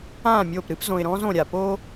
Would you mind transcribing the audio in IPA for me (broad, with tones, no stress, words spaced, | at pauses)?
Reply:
ãː˦˨mʲoː˦˨p ɾɨ˦pzõ˨ɪ̯ɾɔ̃ː˦z õ˨ɾʲa˨poː˦